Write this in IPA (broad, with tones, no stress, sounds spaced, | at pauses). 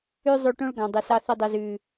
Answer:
ʉ˧ zˤ ʉ˨ ʈ õ˧ ɭ ɡ ɑ̃˨ dˤ ø˨ s ɑ˧ θ y˨ dˤ ø˨ z ʉ˨